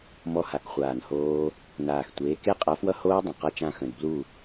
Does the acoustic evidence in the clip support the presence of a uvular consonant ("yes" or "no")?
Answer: yes